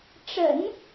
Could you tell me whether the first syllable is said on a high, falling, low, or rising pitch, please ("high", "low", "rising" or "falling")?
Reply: low